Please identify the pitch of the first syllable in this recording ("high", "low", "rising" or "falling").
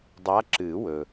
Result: rising